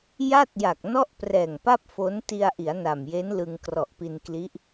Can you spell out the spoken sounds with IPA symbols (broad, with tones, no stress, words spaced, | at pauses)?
ja˥˩t̚ja˨˩k̚ nɔ˥˩ʔprɛː˨˩ŋpa˥˩p̚ fo˦˥n ti˧a̯ʔi˩˦a̯ na˨˩mje˦˥nlɯ˧ŋ krɔ˨˩ʔpi˧nkli˦˥ʔ